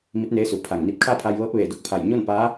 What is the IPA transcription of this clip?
m i˧˥ t̚ n eː˧˥ s u˩˧ pʰ a˧˩ ŋ n i˧ p̚ kʰ a˥˨ pʰ a˧ j ʋ ɤː˧˥ p̚ ʋ eː˧˩ d o˥˨ k̚ pʰ a˧˩ j ɲ o˥˨ n p a˧˥

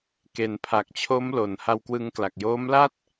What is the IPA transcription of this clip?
k e˩˦ n pʰ a˨˩ k̚ t͡ɕʰ o˦˥ m l o˨˩ n h a˧ w k w ɯ˧ ŋ k l a˨˩ k̚ j oː˦˥ m l a˥˩ t̚

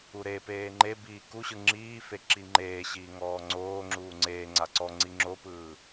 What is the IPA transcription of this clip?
u ɾ e p eː ŋ͡ǃ e b iː k u ɕ ɯ ŋ͡ǁ iː f e ǁ i ŋ͡ǃ eː ɕ iː ŋ ɔː ŋ͡ǀ oː ŋ͡ǁ uː ŋ͡ǀ eː ŋ͡ǀ a ǀ ɔ ŋ͡ǀ i ŋ͡ǁ o p ɯː

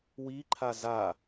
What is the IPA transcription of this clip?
w i ǃʰ a z a

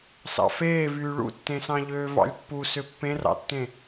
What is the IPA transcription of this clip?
s ɑ̰ f eː v yː ɭ ṵ tː ẽ s ɑ̃ ʎ øː v ɑ̰ lʲ pː u s ø pː ẽ r ɑ̰ tː ẽ

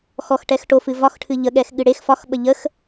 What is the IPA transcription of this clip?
x ɔ x ʈ ɛ x ʈ o f ɨ v ɒ x ʈʰ ɨ ʎ ə ɠ ɛ x ɠ ɨ ɽ e x f ɒ x ɓ ə ʎ ə x

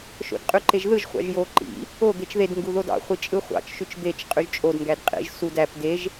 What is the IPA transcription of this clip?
ʃ o̰ d qʼ y ǃ e ʒ ð ɯ ʒ χʷ ɑ̰ ʒ j o ǃ ḭ | o d̪ e t͡ʃ ð e d ŋ ɡ u ð o d ɑ̰ χʷ i t͡ʃʼ ɯ χʷ ɑ̰ t͡ʃ ʃ y t͡ʃ d̪ e t͡ʃ qʼ y ʒ t͡ʃʼ o d ŋ ɡ æ d qʼ ḭ ʒ s u d æ p d e ʒ

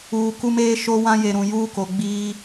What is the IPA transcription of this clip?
uː˨ k u˦ m eː˦ ʃ o˦ w ã˦ j e˨ ɾ ũ˨ j uː˦ k o˨ ɡ͡b iː˦

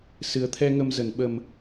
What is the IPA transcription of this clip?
s ɨ˨˩ ə̯ t̪ʰ ɛ˧ ŋ ə˧ m z ə˧˩ n ɓ ə˨˩ m

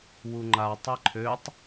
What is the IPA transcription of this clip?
w u ŋ͡ǃ a tˤ ɛ ǃʰ ø tˤ

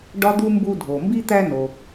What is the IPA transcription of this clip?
ɖ ɒ˥ d̪ u˥ m b u˦ dʱ o˩ m b i˥ t̪ æ˦ n o˨

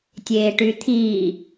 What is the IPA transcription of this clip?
tʲ eː ʈ y t̪ʰ iː

